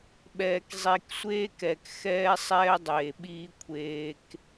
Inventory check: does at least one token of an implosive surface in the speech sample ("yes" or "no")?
yes